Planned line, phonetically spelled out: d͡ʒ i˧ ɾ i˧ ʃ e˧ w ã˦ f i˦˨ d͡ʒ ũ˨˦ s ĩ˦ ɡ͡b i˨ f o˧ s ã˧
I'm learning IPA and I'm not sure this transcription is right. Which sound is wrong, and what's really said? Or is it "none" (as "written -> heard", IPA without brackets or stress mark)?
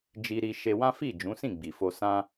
ĩ˦ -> ĩ˦˨